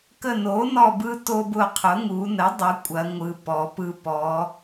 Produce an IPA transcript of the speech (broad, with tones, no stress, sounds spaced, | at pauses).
k ə˦˨ n o˩˥ n ɔ˦˨ b ɯ˦ t o˦ b ʊ˦˨ qʰ ʊ˩˥ ŋ u˩˧ n ə˩˥ dˤ ʊ˩˥ kʷʼ ɐ˩˧ ŋʷ ɯ˩˧ p ɔ˩˧ p ɯ˦ p ɔ˩˧